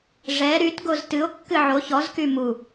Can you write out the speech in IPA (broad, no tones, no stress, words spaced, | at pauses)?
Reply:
ʐɛ ɾytɡoz tɨo̯kːɨ ʕo çɔzky mu